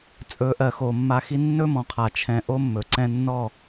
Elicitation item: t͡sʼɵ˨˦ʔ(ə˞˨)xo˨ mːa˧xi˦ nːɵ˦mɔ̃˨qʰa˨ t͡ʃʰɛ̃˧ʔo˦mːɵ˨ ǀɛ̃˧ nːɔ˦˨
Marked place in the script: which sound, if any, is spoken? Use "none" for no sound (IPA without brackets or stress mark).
ɜ˨